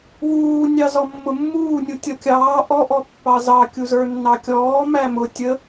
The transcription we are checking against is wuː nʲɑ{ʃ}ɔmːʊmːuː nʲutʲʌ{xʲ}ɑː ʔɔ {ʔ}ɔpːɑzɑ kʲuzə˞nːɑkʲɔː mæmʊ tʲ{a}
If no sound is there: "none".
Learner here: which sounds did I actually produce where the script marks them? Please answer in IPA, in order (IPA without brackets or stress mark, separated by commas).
z, kʲ, ʔ, ə